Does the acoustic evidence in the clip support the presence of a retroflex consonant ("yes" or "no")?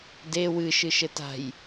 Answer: no